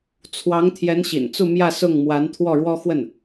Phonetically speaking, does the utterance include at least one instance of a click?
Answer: no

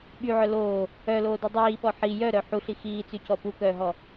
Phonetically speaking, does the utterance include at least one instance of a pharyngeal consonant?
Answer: yes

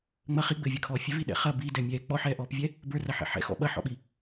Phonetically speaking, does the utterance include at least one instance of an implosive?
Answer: yes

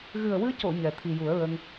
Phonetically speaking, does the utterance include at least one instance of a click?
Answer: no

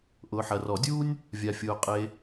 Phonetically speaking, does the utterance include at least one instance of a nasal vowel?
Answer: no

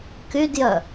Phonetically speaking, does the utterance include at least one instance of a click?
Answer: no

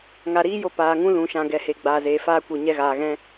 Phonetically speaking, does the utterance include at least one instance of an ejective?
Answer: no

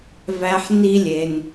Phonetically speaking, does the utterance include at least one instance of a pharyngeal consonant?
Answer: yes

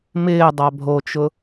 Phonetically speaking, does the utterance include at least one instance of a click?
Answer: no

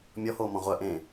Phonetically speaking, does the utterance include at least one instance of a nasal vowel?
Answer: yes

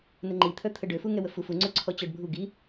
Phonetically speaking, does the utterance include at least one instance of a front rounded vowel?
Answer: yes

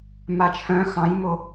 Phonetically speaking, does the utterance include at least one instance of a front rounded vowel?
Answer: yes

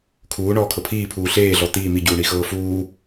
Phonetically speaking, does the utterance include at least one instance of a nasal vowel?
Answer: no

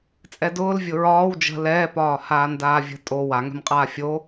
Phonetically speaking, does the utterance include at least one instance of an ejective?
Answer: yes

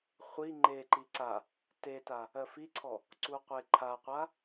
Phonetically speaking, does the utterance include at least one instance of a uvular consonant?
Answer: yes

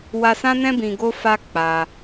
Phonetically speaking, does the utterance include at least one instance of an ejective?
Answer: no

